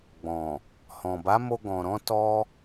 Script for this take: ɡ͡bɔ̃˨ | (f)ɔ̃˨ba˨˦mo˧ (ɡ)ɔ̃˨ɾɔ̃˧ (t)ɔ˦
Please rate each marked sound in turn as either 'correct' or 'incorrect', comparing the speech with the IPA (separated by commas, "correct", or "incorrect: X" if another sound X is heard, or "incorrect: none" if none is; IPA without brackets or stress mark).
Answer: incorrect: h, correct, correct